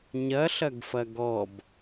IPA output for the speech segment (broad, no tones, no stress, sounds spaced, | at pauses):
ɲ ɐ ɬ ɐ ɡ f ɐ ɡ ɔ b